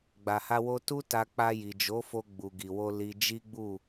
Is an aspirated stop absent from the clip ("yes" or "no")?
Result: yes